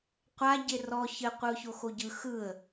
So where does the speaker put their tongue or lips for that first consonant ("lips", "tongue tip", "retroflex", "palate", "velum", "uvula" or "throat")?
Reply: uvula